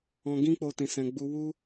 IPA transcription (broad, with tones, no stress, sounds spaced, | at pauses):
ɔ̃˧ ɡ ĩ˦ k͡p o˧ t ĩ˨ s ɛ̃˨ ɡ͡b u˧ w u˦